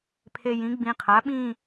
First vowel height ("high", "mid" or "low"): mid